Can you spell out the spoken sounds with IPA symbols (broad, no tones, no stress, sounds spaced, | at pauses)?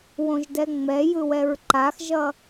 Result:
w õ ʒ d ɛ ŋ͡m ɛ j ɯ w ɛ ɹ ǃ a x ʒ ʌ